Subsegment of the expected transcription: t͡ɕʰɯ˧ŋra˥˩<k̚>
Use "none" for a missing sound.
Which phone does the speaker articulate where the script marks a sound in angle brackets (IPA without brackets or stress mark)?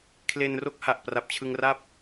p̚